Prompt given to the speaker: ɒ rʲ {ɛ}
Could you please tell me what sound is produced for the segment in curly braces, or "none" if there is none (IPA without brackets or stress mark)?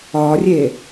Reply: e